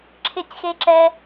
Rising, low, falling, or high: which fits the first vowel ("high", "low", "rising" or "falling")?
falling